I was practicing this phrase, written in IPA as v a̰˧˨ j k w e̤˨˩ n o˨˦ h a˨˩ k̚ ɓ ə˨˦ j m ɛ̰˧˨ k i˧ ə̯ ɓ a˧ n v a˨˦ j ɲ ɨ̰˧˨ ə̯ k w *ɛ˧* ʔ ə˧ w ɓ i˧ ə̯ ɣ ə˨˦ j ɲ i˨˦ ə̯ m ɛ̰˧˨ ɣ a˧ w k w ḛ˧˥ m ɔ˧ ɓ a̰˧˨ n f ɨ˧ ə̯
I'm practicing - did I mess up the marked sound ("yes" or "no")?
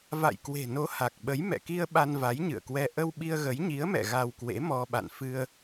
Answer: no